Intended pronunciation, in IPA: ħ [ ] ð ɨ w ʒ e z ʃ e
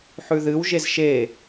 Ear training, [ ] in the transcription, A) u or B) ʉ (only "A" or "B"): B